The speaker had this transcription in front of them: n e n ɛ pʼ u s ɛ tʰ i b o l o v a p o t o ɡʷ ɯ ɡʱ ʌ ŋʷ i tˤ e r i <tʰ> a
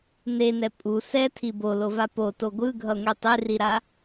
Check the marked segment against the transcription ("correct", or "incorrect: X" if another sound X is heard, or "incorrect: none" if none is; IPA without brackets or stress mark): incorrect: ɾ